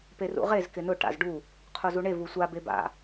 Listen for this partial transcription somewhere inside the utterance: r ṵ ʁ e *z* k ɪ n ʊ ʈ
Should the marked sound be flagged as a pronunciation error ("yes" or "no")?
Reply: no